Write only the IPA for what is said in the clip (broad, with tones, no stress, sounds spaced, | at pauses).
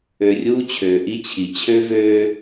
ø˨ rʲ uː˦ t͡ɕʰ øː˨ ʔ i˦ t͡ɕʰ i˨ t͡ɕʰ ø˦ v øː˦